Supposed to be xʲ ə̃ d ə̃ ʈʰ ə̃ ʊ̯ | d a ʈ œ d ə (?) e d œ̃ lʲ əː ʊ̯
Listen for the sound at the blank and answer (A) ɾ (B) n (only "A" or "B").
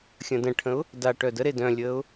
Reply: A